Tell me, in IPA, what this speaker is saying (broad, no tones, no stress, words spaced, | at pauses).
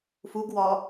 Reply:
fuɡwɒ